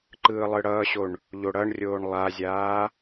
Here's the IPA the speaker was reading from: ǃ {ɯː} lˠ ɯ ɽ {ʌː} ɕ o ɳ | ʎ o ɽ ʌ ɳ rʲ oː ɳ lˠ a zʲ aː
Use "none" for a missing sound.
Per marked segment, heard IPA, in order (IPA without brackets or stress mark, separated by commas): ɯː, ʌː